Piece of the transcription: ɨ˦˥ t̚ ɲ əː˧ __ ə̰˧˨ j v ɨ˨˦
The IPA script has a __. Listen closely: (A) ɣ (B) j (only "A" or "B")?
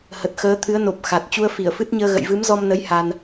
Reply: A